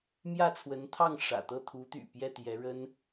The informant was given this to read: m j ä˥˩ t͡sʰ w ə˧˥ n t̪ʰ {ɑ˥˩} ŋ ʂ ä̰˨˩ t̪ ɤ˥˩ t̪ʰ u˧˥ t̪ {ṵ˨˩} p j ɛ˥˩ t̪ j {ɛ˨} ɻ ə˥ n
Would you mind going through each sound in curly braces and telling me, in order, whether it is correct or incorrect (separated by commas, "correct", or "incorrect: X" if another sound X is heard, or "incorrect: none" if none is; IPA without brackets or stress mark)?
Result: correct, incorrect: y̰˨˩, incorrect: ɛ˧˥